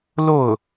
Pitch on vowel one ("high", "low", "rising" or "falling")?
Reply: falling